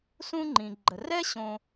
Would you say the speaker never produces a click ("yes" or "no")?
no